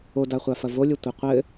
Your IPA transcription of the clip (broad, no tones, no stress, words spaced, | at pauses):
odaχʷafɐ volʲɘtʷɨ qʷɘ